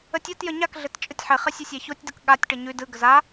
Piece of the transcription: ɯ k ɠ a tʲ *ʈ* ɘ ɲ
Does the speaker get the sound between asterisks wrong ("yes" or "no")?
no